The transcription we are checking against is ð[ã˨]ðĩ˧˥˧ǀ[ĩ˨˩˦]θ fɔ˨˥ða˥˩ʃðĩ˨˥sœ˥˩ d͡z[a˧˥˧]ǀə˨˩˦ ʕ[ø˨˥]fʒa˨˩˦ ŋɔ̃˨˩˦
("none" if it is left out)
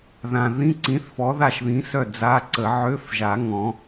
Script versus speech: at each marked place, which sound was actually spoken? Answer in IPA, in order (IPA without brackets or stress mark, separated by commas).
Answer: ã˨, ĩ˨˥, a˧˥˧, ø˧˥˧